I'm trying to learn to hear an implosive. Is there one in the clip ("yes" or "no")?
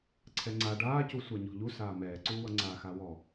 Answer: no